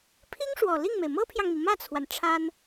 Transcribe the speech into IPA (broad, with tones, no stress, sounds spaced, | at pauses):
pʰ i˥ ŋ ʂ w ɔ˨˩ l i˥˩ ŋ m e˩ ɪ̯ m ɤ˥ pʰ j ɑ˨ ŋ m i˩ m ä˥˩ t͡sʰ w a˩ n ʈ͡ʂʰ a˥ n